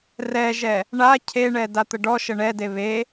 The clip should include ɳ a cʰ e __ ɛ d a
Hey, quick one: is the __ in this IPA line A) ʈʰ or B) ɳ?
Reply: B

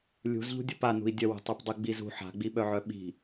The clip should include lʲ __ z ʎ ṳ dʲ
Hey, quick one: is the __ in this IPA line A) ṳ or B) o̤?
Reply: A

